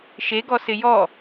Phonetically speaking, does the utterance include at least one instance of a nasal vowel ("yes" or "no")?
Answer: no